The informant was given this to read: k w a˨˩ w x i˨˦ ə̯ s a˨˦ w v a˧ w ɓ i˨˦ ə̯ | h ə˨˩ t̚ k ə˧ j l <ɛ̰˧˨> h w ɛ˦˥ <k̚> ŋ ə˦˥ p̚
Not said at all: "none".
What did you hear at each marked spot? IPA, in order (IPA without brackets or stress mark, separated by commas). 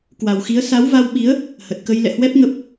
ɛ̰˧˨, p̚